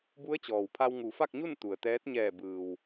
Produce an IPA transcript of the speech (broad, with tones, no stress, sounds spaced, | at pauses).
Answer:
b u˧˥ ə̯ t͡ɕ ɔː˩ w pʰ a˧ w ŋ u˩˧ f a˥˨ k̚ ɲ u˥˨ n t̪ u˩ ə̯ t̪ ɛː˧˥ t̚ ɲ ɛː˧˩ b ɯː˩ w